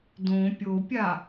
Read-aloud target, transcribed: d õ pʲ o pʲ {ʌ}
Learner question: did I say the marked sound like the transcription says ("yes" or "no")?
no